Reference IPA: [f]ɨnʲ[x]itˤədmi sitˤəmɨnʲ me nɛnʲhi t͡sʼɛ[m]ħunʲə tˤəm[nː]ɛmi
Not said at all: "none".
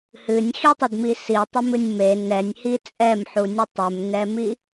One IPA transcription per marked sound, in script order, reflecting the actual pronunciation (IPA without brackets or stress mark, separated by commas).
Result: h, x, m, n